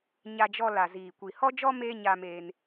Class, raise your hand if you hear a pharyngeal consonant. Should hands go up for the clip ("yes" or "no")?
no